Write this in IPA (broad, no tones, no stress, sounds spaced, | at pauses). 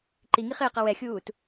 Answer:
ǃ i ŋ i χ ɪː q ʌ w ɛ xʲ uː t